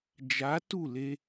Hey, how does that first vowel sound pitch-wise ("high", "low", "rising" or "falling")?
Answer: rising